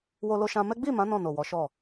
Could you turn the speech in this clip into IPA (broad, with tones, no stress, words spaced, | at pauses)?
wo˧lo˧ʃã˧mɛ˦ ɡ͡bi˦˨mã˨˦ nɔ̃˦˨no˨wɔ˨˦ʃɔ˦˨